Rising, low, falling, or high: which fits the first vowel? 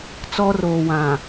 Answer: high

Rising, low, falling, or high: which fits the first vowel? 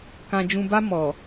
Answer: low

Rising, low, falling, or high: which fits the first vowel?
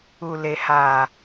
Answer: low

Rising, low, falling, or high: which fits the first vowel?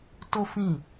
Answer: high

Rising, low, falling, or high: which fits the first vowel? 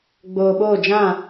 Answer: low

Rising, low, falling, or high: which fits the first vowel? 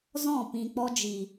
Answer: falling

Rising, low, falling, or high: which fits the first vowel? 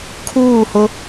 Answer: falling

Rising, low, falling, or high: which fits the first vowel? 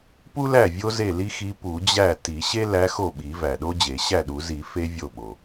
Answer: high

